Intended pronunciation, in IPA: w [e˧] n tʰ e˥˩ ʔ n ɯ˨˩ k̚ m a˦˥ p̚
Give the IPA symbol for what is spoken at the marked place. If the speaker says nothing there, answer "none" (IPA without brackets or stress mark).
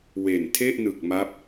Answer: e˨˩